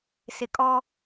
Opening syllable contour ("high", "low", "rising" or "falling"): low